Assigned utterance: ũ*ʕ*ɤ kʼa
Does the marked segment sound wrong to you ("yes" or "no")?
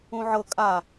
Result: no